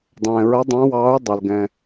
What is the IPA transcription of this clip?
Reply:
dˤ ɛ̃ː˩ ɹ ɐ˨˥ dˤ ã˨˥ w ɑː˨˥ u̯ dˤ ɐ˩ l ɡ ɛ̃˩

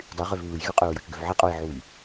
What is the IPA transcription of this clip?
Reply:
dˤ y ʁ ø v β ɯ j ɣ y qʼ ø ɹ j o t͡ʃ ɡ ø v ʕ e qʼ o j ʕ u j

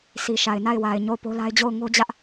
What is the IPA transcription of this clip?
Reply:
sʰ i˨ ʃ a˨ ɪ̯ n a˦˨ ɪ̯ w a˨ ɪ̯ ɲ o˦˨ ʊ̯ p o˦ l a˦ ɪ̯ d͡ʑ o˦˨ ʊ̯ ŋ o˦ d͡ʑ ä˦ ʔ

